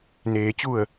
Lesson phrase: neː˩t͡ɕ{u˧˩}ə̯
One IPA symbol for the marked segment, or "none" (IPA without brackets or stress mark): u˧˩